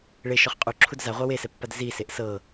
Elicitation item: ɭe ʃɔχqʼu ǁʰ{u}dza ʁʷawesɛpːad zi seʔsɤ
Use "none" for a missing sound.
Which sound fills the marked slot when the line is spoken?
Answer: u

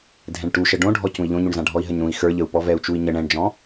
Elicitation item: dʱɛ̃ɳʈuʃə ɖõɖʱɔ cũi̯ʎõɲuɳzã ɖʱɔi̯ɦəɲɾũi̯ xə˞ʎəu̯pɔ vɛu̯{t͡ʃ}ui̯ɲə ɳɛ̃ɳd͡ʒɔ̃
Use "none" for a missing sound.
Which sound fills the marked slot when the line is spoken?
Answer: t͡ʃ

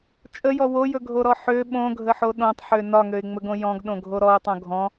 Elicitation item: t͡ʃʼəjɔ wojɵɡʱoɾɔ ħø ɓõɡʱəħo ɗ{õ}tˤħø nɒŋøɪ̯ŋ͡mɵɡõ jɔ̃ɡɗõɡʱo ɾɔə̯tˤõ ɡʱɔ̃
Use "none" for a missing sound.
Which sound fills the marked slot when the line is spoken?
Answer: õ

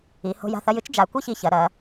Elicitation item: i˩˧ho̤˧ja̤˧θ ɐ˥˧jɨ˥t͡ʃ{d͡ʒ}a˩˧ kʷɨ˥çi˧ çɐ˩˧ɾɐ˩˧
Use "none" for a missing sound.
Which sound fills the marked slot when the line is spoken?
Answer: d͡ʒ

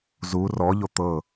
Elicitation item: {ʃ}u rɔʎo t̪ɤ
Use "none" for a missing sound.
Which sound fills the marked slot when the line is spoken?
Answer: z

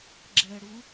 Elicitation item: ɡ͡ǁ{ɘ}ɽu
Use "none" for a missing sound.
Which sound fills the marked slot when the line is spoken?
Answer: ɛ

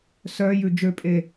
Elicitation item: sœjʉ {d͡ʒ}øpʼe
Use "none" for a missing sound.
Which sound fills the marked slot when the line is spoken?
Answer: d͡ʒ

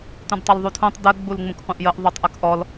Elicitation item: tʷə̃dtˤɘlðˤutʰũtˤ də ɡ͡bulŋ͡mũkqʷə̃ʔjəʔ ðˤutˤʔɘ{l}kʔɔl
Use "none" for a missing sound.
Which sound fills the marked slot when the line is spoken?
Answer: none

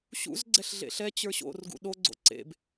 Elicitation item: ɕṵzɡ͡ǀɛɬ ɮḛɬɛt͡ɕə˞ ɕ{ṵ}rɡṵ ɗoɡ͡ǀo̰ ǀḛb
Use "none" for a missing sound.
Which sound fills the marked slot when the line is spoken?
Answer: o̰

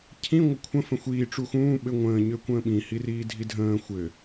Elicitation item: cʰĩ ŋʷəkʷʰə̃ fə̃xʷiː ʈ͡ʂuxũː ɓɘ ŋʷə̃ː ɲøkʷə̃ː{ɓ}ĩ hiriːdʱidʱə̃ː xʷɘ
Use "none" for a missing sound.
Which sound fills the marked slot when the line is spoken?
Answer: ɓ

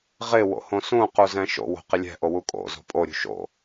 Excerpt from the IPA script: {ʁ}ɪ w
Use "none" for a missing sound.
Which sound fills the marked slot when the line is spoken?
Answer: ʁ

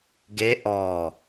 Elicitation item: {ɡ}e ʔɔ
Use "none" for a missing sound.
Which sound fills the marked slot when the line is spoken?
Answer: ɡ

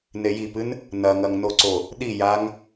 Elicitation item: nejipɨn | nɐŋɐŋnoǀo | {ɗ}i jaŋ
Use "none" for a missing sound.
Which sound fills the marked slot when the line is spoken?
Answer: ɗ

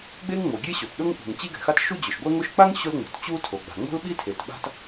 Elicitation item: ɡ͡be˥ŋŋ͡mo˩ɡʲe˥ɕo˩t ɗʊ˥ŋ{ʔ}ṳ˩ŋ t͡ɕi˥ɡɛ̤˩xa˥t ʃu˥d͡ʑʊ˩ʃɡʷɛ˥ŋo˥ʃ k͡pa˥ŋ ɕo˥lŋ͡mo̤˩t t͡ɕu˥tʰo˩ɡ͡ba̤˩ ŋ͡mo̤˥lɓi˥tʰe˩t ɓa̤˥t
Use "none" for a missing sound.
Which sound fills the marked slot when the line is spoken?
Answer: ʔ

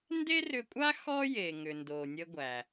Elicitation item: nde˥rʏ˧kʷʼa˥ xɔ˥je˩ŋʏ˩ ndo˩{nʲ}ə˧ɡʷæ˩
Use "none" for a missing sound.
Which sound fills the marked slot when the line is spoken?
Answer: nʲ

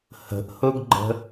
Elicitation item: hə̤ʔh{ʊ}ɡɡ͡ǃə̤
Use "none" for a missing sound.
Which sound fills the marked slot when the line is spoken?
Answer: ʊ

